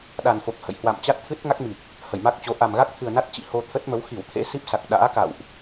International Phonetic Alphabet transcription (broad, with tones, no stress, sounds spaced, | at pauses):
ɗ a˨˩ n f o˨˩ k̚ h ə̰˧˨ j h w a̰˧˨ m t͡ɕ a˦˥ t̚ t̪ʰ ɨ˦˥ t̚ ŋ a˦˥ k̚ m i˨˩ k̚ | h ə˧˩ j m a˦˥ k̚ t͡ɕ o˨˦ ʔ a˨˩ m ɣ a˦˥ k̚ t̪ʰ ɨ˨˩ ə̯ n a˦˥ t̚ t͡ɕ ḭ˧˨ h o˧ t̪ʰ ə˦˥ t̚ m ə˨˦ w x i˧˩ w t̪ʰ ḛ˧˥ s i˦˥ p̚ s a˨˩ k̚ ɗ a̰ː˧˥ k a̰˧˨ w ʔ